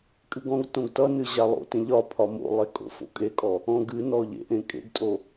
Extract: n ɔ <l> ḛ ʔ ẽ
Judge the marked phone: incorrect: ʎ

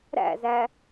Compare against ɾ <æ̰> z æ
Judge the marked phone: correct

